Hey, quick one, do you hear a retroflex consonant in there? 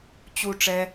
yes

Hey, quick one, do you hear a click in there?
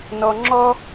yes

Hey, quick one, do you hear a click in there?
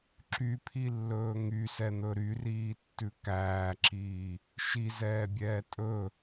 yes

